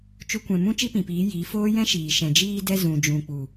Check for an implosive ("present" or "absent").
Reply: absent